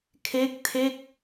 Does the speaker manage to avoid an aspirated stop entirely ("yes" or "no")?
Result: no